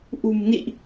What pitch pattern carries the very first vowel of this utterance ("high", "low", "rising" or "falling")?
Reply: low